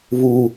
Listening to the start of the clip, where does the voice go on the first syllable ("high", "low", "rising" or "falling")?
low